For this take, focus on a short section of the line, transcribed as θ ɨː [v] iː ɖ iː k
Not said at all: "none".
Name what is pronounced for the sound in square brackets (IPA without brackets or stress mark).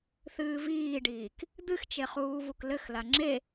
v